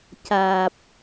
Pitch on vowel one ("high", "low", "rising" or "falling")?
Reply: low